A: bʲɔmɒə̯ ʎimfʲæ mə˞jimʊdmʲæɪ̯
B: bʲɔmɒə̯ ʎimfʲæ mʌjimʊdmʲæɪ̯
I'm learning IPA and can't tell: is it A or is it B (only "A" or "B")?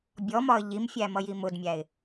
B